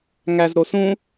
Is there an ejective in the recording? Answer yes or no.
no